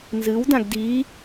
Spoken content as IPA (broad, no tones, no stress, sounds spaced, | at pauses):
n z ɨ w d ã ɡ d i